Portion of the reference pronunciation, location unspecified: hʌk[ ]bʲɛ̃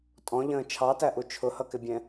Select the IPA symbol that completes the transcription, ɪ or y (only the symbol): ɪ